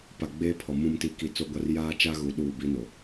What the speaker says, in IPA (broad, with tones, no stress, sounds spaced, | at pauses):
p a˨ ɡ͡b eː˦ pʰ ɔ˨ m ũ˨ m t i˨ k i˨ t͡s o˦ ɡʷ a˦ r j aː˦ t͡ʃ a˦ ɣ u˨ ɗ uː˦˨ b i˦ n o˨